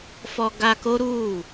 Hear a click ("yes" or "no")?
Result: no